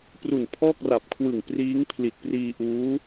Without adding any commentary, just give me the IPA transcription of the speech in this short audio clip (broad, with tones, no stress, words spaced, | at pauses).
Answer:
pru˨˩n pʰɔː˥˩k̚ra˨˩p̚kʰwɯ˨˩ŋ priː˦˥ŋpʰli˨˩t̚priː˧ ʔuː˦˥